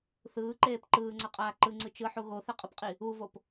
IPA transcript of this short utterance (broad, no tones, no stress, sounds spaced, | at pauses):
θ ɯː ǃ eː p ǃ ɯː ŋ͡ǀ ʌ qʼ aː ǃ ɯ ŋ͡ǀ ɯ t͡ʃ ɯ ħ u ɣ o θ ɛ qʼ ɯ p qʼ i | u v o p